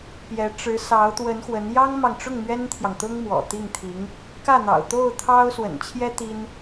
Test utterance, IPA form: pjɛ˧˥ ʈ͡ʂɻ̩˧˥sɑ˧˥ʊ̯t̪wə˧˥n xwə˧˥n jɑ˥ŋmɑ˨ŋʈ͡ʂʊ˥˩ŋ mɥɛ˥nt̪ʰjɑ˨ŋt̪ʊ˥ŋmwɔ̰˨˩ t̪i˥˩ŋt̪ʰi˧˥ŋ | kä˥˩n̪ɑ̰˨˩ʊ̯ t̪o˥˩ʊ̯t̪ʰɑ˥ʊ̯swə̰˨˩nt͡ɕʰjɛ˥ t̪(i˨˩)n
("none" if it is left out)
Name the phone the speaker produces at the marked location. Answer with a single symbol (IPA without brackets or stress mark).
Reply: i˥